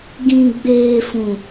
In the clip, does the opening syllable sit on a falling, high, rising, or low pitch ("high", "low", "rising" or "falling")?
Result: low